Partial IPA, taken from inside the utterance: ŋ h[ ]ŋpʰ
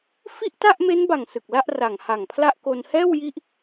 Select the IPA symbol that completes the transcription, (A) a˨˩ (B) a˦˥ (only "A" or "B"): A